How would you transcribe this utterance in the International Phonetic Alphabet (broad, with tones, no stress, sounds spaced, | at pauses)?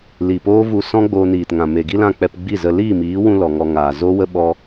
l i˨ p oː˦ v u˧ s ɔ̃˦ ɡ͡b oː˧ n iː˨ t ŋ ã˨ m e˨ ɡ i˦ l ã˦˨ k͡p ɛ˧ p ɡ͡b i˦˨ z ə˧ l iː˦˨ m iː˨˦ w ũ˧ l ɔ˨ ŋ ɔ˧ ŋ aː˨ z o˦ w ə˦ ɓ ɔ˧